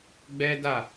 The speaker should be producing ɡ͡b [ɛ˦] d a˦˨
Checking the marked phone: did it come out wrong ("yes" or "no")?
no